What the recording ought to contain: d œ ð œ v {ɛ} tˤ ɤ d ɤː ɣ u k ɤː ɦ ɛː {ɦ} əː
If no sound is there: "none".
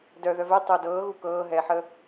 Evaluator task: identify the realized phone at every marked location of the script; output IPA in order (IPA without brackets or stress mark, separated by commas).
ɛ, ħ